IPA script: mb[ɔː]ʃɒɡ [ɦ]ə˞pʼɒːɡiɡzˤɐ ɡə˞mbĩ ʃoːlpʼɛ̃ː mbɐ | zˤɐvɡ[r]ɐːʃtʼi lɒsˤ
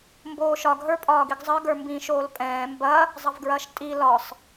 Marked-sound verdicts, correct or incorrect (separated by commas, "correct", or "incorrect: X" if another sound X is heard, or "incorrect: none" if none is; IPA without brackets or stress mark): incorrect: oː, correct, incorrect: ɹ